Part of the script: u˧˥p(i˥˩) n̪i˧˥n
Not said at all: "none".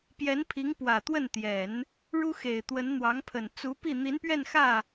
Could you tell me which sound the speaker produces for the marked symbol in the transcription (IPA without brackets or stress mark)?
i˥˩